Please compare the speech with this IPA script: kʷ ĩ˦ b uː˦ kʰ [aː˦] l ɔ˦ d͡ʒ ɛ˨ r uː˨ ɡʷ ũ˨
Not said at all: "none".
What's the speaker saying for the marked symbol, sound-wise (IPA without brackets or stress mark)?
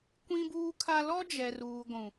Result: a˦